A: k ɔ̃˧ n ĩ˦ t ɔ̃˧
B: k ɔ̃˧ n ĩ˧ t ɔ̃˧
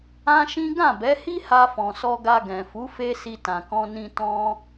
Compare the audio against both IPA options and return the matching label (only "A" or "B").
B